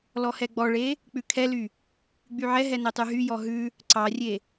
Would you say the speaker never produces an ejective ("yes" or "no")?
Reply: yes